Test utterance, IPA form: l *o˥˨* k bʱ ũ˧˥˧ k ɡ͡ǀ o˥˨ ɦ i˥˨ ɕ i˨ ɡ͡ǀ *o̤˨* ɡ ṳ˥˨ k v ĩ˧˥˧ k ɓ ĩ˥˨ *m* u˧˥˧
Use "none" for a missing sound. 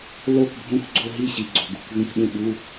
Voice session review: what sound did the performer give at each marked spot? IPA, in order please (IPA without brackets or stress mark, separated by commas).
o˥˨, o̤˨, ɓ